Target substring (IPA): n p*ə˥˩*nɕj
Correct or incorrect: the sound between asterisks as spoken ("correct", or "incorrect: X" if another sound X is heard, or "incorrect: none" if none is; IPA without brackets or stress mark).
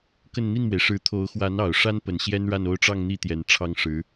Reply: incorrect: ə˨˩